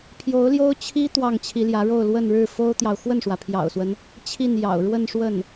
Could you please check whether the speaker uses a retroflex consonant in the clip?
yes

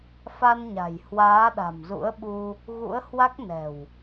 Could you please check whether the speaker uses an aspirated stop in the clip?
no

